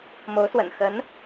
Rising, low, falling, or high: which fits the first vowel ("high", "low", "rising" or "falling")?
rising